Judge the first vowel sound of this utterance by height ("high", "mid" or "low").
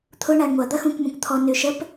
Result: high